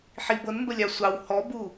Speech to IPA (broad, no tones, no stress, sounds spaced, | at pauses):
ħ i b ɤ n m b ə lʲ ɑ sʷ ɑ w h ɔ b u